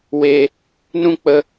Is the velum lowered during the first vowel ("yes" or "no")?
no